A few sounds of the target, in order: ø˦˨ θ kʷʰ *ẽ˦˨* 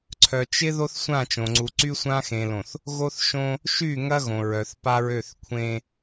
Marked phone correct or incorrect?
incorrect